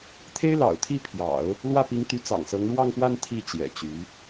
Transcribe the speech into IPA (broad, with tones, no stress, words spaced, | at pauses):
t̪ʰe˥ɪ̯lɑ̰˨˩ʊ̯t̪ʰi˥˩pʰjɑ̰˨˩˦ʊ̯ | lwä˥˩pi˧˥ŋ t̪y˧˥t͡sɑ̰˨˩ŋsɤ˧˥ŋ ɻwɑ˥˧ŋpwa˥˧n t̪ʰi˥˩ t͡ɕjɛ̰˨˩t͡ɕy˧˥